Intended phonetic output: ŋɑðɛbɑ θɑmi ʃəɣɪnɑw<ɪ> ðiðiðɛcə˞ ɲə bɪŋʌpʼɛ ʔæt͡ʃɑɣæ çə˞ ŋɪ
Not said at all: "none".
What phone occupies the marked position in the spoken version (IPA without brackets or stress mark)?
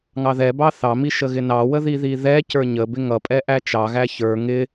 ə